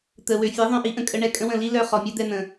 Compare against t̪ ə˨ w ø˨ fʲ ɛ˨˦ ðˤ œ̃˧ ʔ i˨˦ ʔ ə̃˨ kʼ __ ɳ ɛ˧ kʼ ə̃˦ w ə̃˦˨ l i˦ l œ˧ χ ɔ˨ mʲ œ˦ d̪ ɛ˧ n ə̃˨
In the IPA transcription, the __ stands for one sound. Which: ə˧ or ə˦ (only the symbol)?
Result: ə˧